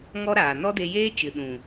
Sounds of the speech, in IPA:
ŋ ɔ˦ ɾ aː˨ n ɔ˦ d e˧ j eː˦ t͡ʃ ɨ˨ ɗ ũ˨

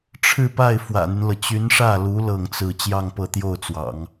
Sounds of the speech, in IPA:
ʈ͡ʂʰ ɻ̩˥˧ p a˥˩ ɪ̯ f w ä̰˨˩ n̪ y˦ n l ɤ˩ t͡ɕ y˧˥ n ʂ ä˥˩ l u˧˥ l ɤ˥˧ ŋ t͡s ɹ̩˥˧ t͡ɕ j ɑ˥˧ ŋ p ɤ˥˧ t̪ j o˥˩ ʊ̯ t͡s w ɑ̰˨˩˦ ŋ

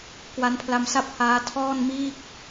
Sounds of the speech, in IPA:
k w a˦˥ n pʰ l a˧ m s a˥˩ p̚ h aː˦˥ tʰ ɔː˥˩ n m iː˥˩ k̚

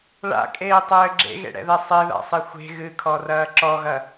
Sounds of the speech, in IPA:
ɭ a̰ kʼ eː tˤ ɘː ɡ͡ǁ ḛ ɣ ḛ ɽ ɛ̰ ð ɛ sˤ e ð a̰ sˤ i xʷ e̤ ɣ ɨ kʰ ɔ r ɐː ǁ ɔ ɣ ɐ

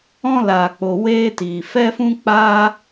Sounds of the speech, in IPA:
ɔ̃˦ l aː˨ k͡p o˨ w eː˦ t iː˨ f ɛ˦ f ũ˦ k͡p aː˦

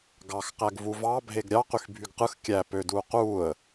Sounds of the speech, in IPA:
ɡ ɑ x q æ ɡ v u v ɑ bʱ e ɡ ɾʲ ɑ q y x bʱ y ɡ q ɯ x kʲ æ p ø d uː q uː ə̯

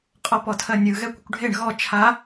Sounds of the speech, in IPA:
qʼ ɔ p ɔ tʰ ɜ nʲ ɯ ɣ ɛ kʷ ə kʷ ɖʱ e ɳ ɣ ɔ t͡ʃʰ a

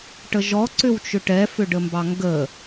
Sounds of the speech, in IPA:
ʈ ə ʒ ɔ ǀ ʏ w t͡ʃ ʏ ʈ ɛ f ʏ ɖ ə m b ɑ ŋ ɡ ə

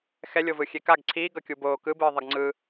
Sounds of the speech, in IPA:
x ɛ lʲ o v ɯ xʲ e k a ɡ ǀʰ iː ɡ ʌ kʲ u b oː k ɯ b ɯː ðˤ ʌ ɡ ŋ͡ǀ ɯ

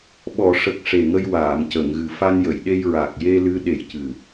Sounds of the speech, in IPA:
ɓ ɔ˨˩˨ ʂ ə˨˩ k̚ ʂ e˨˩ ŋ ə˧ j w aː˨˩˨ m c ə˨˩˨ ŋ ɣ ɨ˨˩ f a˧ n j ə˨˩˨ j ɗ e˧ j ɹ a˨˩ k̚ j e˧ l ɨ˧˥ ɗ e˨˩ j c ɨ˨˩

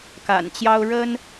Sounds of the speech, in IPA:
k a̰˨˩ n t͡ɕ j ɑ˦ ʊ̯ ɻ ə˦ n

